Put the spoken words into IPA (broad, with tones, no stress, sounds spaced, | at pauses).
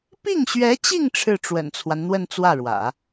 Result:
p i˥˩ ŋ ɕ ɥ ɛ˧˥ t͡ɕ i˥˧ ŋ ʈ͡ʂʰ ɻ̩˥˩ ʈ͡ʂ w ə̰˨˩ n t͡sʰ w a˦ n n̪ w ə˥˧ n t͡s w ä˥˩ ɻ w ä̰˨˩˦